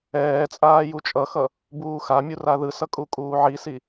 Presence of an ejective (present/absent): present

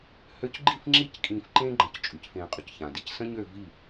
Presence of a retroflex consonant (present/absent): absent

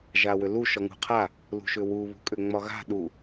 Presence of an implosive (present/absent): present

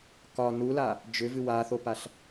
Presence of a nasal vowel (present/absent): absent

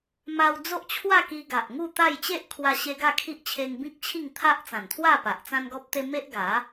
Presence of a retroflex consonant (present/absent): absent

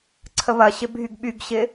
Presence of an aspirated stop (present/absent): present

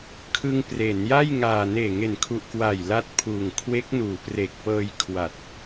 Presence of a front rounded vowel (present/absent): absent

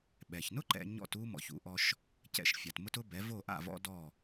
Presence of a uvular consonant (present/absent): absent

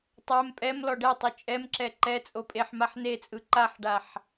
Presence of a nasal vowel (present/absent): absent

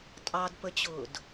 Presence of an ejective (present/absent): present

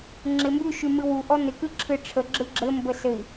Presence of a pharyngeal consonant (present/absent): absent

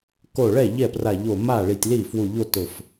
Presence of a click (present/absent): absent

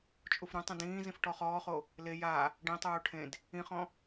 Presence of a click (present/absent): absent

